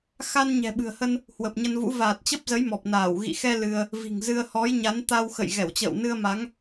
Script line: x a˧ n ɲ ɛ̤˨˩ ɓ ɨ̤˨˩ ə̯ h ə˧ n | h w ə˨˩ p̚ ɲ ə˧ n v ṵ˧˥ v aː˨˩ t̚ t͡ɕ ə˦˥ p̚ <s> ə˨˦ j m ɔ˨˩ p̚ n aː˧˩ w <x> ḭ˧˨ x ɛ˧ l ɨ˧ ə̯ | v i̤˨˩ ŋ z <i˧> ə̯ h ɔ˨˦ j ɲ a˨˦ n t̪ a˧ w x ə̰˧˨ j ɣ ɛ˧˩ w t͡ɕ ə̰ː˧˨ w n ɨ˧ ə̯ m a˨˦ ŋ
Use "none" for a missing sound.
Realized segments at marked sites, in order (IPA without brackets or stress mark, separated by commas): z, ɣ, ɨ˧